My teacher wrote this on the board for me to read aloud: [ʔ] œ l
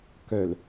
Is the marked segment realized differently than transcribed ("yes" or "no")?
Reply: yes